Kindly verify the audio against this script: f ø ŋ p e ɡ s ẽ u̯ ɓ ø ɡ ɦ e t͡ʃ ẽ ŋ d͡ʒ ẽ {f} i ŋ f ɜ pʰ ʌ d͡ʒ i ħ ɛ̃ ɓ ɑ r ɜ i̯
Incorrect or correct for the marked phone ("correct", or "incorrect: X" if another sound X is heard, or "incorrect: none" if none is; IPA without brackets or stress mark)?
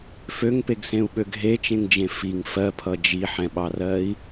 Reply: correct